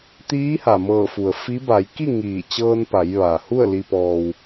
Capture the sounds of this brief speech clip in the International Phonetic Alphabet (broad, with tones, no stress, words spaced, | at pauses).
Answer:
t̪iː˧˥ha˩mɤː˧˩fu˩ə̯ fi˧˥ ba˩˧jki˥˨ ŋiː˧˩ t͡ɕɤː˧npa˩˧j ʋa˩ hu˥˨ə̯li˧pɔː˧w